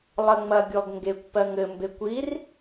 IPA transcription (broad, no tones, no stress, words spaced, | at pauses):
lˠɜŋ͡mɐɡʲɔɡŋɡekʷ pɜŋɘ mbekʷir